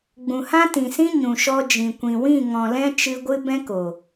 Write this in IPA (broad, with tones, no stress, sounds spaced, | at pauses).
ɡ͡b ũ˨ h ã˦ t ĩ˨ s ĩ˦ ɲ ũ˨ ʃ ɔ˧ d͡ʒ ĩ˨ kʷ ĩ˨ w ĩ˦˨ ŋ ɔ̃˨ l ɛ̃˧ t͡ʃ ɨ˧ ɡʷ ɨ˦ b ɛ̃˦ k o˨